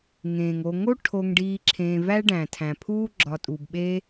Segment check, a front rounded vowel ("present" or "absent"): absent